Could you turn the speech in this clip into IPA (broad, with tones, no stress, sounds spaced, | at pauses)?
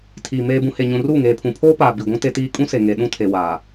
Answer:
tʰ iː˨ m eː˨ b ũ˨ h e˨ ɲ ũ˨ r uː˦˨ ŋ eː˨ pʰ ũ˨ pʰ oː˦ p aː˨ b i˨ ɡʷ ũ˦ t e˦ t iː˦ kʼ ũ˦ s e˨ ŋ e˨ ɗ ũ˦ tʰ e˨ w aː˨